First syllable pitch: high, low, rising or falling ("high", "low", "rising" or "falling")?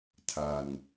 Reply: low